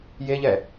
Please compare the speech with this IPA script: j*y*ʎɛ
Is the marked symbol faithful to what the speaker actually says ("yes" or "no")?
no